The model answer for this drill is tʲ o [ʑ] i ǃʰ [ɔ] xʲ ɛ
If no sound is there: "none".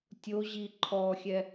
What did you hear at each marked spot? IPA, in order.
ʑ, ɔ

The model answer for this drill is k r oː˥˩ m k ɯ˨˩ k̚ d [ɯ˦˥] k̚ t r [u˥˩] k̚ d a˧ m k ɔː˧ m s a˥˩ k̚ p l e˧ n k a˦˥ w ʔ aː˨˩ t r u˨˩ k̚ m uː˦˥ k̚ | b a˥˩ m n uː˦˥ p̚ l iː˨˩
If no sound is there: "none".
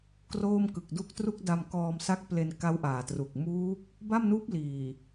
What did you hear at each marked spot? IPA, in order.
u˦˥, u˥˩

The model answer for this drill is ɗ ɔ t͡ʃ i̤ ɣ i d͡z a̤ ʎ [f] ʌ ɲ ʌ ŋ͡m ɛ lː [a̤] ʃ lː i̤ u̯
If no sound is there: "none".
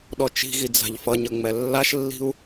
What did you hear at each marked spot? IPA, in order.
f, a

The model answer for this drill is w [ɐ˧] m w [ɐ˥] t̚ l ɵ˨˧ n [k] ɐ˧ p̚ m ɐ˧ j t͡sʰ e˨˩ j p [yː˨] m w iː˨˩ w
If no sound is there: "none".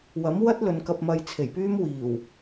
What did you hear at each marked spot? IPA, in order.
ɐ˨˥, ɐ˥, k, yː˥

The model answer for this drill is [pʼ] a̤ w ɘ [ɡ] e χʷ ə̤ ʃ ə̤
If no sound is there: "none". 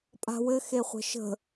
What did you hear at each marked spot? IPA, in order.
pʼ, x

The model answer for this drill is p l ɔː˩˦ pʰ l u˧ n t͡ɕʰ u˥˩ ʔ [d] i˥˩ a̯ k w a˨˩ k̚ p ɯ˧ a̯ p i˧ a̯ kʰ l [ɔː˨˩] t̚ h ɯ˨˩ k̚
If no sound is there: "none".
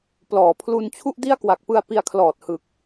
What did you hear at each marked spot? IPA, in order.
d, ɔː˨˩

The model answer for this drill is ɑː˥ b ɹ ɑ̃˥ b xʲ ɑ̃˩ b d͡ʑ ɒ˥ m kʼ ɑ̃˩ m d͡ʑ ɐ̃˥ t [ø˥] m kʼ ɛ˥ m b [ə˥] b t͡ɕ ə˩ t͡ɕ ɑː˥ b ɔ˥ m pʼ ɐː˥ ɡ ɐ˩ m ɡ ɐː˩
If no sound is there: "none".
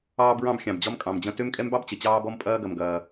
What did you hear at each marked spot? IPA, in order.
ø˥, ɑ˥

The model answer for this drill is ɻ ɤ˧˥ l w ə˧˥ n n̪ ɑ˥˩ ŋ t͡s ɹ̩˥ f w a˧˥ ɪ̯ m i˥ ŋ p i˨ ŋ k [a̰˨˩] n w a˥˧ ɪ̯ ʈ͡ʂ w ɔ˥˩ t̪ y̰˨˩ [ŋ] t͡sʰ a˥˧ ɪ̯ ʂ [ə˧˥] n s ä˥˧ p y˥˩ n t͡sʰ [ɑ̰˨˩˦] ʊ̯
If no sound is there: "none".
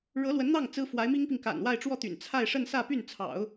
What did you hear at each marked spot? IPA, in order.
a̰˨˩, n, ə˥˧, ɑ̰˨˩˦

